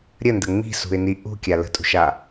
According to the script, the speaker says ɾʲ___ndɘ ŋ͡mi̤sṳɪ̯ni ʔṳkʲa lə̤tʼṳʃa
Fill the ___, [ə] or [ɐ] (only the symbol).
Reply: ə